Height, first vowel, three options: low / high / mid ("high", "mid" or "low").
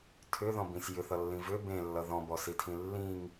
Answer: high